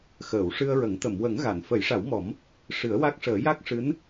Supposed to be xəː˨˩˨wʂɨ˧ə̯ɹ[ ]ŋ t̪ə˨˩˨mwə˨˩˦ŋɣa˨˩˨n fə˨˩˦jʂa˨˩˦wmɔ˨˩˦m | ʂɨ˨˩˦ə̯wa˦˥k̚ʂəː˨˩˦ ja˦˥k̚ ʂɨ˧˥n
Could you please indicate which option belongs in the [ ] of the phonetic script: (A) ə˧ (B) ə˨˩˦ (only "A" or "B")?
B